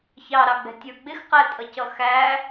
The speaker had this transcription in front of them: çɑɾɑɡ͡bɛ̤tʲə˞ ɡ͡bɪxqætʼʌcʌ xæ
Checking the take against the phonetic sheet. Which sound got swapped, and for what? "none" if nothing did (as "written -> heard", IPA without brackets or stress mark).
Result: none